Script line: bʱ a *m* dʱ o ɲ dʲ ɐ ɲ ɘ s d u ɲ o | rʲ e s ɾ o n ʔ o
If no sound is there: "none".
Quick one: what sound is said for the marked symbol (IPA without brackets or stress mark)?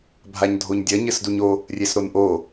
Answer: ɲ